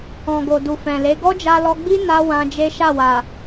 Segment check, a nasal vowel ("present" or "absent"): present